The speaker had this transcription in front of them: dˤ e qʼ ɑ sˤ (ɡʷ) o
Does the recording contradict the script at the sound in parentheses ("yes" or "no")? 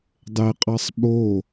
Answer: yes